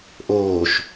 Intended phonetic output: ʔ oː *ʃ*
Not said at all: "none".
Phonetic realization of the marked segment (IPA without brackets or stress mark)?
ʃ